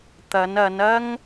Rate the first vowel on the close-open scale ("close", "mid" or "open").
open